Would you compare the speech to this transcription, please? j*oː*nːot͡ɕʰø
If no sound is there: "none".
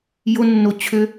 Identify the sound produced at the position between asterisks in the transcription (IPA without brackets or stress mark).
o